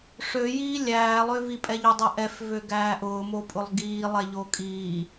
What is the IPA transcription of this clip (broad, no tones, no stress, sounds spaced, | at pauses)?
ʂ ø j iː lʲ æː lˠ ø v i pʼ ɛ ʎ ø dˤ ɛ ʔ ɛ f v ø ɡ æː ʔ ʊː m o pʼ ʊ lˠ ɡ iː lˠ ɛ ʎ o kʼ iː